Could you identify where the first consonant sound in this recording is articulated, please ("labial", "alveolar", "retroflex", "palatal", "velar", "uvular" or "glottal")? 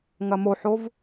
velar